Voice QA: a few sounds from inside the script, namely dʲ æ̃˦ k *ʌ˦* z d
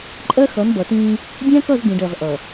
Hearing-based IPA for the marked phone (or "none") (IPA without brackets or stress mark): ʌ˦˨